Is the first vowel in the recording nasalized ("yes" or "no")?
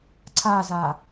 no